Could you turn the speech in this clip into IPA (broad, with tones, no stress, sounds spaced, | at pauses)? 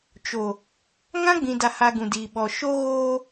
t͡ʃ o˨ | ŋ ã˦ ɡ͡b ĩ˨ d a˨ h a˨ ɡ ũ˨ d iː˨ ɓ ɔ˨ ʃ o˦ ɣ oː˦